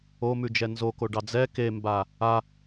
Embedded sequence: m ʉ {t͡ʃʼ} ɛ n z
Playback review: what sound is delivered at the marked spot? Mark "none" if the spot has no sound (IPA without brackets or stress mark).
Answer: d͡ʒ